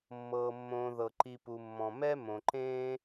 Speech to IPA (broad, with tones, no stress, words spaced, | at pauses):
mːɤː˩ mːõː˨ðɤ˩ǃi˨ pu˩mːɔ̃˩ mɛ˥ mõ˩ǃẽː˦